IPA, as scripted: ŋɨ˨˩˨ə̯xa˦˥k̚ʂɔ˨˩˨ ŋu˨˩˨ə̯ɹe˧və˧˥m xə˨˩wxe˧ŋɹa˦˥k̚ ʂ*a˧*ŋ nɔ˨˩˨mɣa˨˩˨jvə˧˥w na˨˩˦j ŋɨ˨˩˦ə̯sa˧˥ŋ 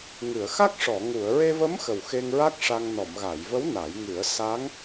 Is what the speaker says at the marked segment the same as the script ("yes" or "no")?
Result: yes